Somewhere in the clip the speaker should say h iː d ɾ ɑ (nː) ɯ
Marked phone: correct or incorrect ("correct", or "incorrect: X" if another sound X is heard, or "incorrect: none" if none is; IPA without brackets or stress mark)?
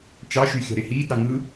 incorrect: ŋ